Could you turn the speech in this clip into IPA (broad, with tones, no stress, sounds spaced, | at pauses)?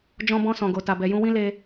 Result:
d͡ʒ ɔ̃˧ b ɔ̃˧ s ɔ̃˨ ɡ o˨ t a˨ b ɛ˨ j ũ˧ w ĩ˦ l e˧